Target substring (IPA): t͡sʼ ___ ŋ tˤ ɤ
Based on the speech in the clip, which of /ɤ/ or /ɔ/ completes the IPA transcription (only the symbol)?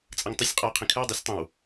ɤ